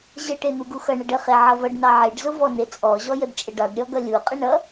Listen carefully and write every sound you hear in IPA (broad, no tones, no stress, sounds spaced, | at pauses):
ʑ ə ʈ e n̪ u ɡ u x ʌ ɳ ʌ ɖ ə χ e ʕ ʌ v ʌ ɖ n ɑ ʕ e ɖ z ʊ v ɔ n e t͡sʼ ɔ ʑ ɔ j ə d t͡ʃʼ ə ɖ ɑ ɖ ɾʲ ɔ ɡ ʌ lʲ u qʼ ə ɳ ʌ